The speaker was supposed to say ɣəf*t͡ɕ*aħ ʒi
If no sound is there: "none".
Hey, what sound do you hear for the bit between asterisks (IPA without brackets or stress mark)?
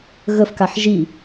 k